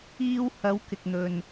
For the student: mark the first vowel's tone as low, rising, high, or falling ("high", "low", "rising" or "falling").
high